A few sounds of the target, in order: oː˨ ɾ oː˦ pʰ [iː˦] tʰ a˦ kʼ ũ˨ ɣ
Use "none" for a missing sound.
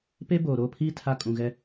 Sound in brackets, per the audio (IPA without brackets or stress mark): iː˦